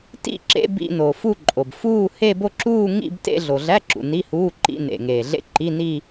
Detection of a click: present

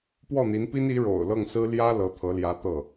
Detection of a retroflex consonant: present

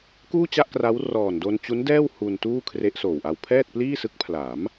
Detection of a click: absent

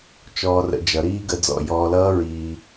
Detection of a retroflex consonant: absent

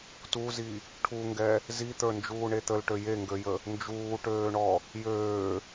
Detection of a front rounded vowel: present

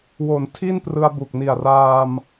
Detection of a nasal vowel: absent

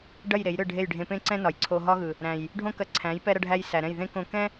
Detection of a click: present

